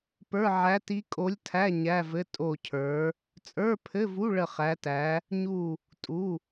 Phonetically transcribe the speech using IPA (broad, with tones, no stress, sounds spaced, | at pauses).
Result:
p ə˞˧˥˧ ʕ æ˧˥ t i˧˥ kʼ o˧˥ lʲ tʰ æ˧˥˧ ɲ æ˧˥˧ v ɘ˧˥˧ tʼ o˥˧ cʰ ə˞˧˥ | t͡sʼ ə˞˧˥˧ pʰ ɘ˧˥˧ v u˧˥˧ ɭ ə˥˧ χ æ˧˥ t æ˧˥ | ɲ u˥˧ | tʼ u˧˥˧